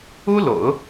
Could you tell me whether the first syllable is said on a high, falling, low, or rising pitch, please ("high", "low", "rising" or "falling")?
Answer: high